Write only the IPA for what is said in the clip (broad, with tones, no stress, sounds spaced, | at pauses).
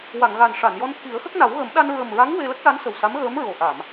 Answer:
w a˨˩˨ ŋ ɣ a˨˩ n ʂ a˨˩˨ n j ɔ˧ n t̪ʰ i˨˩˦ ə̯ x ə˦˥ k̚ n a˨˩˦ w ɣ ə˨˩˦ m ɗ a˧ n ɹ ə˨˩ m ɹ a˧˥ ŋ w e˧ l ə˦˥ k̚ l a˧˥ n s ə˨˩ w s a˧˥ m ɣ əː˧˥ m ɹ o˨˩ ʔ a˨˩˨ m